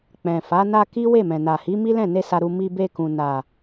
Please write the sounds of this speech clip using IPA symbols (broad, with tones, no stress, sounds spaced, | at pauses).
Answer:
k͡p ɛ̃˨ f a˨˦ n a˧ k i˦ w e˦˨ m ɛ̃˨ n a˨ h i˨˦ m i˦ l ɛ̃˦˨ n e˧ s a˧ ɾ u˧ m i˧ b e˧ k ũ˨ n a˨